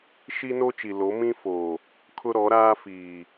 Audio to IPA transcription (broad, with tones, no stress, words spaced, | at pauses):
ʃi˦no˦ t͡ʃi˨lo˨˦mĩ˦foː˨ | kʰʊ˦ɾɔ˨˦ɾaː˦fiː˨